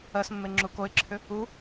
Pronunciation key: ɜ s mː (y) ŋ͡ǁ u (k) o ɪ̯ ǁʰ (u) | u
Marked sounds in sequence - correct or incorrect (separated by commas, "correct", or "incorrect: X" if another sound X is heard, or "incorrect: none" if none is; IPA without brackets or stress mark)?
incorrect: e, correct, incorrect: ʏ